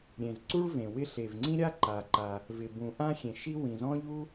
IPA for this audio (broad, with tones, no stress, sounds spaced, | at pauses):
ɾʲ ẽ˩ z ǀ u˥ ɭ v ẽ˩ w ɪ˥ ɬ e˩ v ŋ͡ǀ ĩ˥ ɾʲ a˥ ǃ a˩ ǃ a˩ | v ɪ˩ b ũ˩ ʔ ã˥ xʲ ẽ˩ ʃ i˥ w ĩ˩ z ɔ̃˥ ʎ u˥